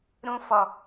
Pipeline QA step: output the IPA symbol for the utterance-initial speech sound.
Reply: ɾ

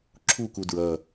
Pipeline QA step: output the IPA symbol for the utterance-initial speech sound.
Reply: ǁʰ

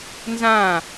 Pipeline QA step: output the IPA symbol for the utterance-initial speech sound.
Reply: n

